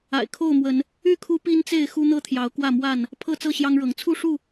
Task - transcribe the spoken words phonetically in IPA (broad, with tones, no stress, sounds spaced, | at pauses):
a̰˨˩ ɪ̯ kʰ o˥˨ ʊ̯ m w ə˨˦ n | y˥˨ kʰ u˦ p i˦ n t͡s e˥˨ ɪ̯ x u˦ n̪ ɤ˥˨ t̪ʰ j ɑ˨˦ ʊ̯ k w ä˥˨ m w a˥˨ n | pʰ ɤ˥˨ t͡s ɤ˥˨ ɕ j ɑ˦ ŋ ɻ ɤ˨˦ ŋ t͡sʰ u˥˨ ʂ u˥˨